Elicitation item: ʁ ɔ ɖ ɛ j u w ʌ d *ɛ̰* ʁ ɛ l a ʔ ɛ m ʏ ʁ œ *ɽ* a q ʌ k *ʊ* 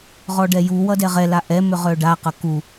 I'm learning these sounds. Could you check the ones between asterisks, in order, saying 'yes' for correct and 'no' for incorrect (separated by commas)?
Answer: no, no, no